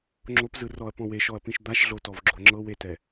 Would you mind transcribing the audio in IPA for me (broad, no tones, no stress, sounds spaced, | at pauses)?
ŋ͡ǁ o p z ɯ r ɔ ɐ̯ p ɔ̃ w e ʃ ɔ ɐ̯ p ĩ ʃ d̪ a ʃ ɮ o t ɔ v ɡ͡ǁ o ŋ͡ǁ ɤ w e t ɛ